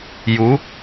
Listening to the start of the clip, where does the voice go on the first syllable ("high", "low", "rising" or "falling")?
rising